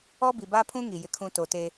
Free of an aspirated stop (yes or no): no